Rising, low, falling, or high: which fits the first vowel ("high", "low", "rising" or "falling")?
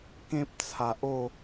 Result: high